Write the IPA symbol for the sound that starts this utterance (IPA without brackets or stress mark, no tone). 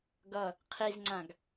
ɡ